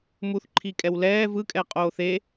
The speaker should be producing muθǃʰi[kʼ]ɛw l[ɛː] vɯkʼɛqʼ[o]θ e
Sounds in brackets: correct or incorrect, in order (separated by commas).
correct, correct, incorrect